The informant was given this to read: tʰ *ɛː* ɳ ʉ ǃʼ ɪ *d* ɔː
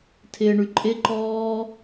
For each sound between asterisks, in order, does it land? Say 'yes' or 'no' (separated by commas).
no, no